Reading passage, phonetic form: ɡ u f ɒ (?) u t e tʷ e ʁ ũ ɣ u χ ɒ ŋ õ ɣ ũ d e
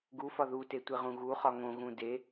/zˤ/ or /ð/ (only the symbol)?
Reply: ð